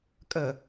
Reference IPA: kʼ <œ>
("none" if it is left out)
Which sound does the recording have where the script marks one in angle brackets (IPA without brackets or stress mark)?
ə